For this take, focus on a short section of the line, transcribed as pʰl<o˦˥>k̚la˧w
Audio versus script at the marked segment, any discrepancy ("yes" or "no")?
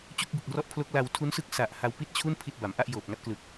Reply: no